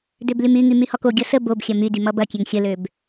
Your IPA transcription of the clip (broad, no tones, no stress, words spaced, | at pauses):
døblymyŋy myhɔkoɡʲʌ sə bob xʲɐmydy mʌbɐkʲøŋ xʲəløb